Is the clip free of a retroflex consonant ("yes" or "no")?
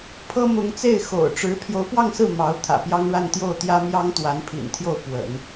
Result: no